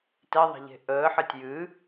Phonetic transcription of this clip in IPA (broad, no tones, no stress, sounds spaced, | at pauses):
t ɛ ðˤ ɛ̤ ʎ e̤ ʔ əː ħ ɜ tʲ j ɨ